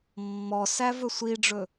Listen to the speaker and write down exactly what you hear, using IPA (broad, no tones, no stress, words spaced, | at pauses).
mːɔsæ vɵsʷiɖ͡ʐɵ